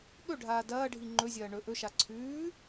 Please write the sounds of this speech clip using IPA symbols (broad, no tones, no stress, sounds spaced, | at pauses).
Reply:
ɠ ɵ ɖʱ aː d ɐː ɖʱ i ŋ͡ǃ ɵ zʲ ɐː ɳ ɵ ʔ ɵ ʃ a ǀʰ ʉː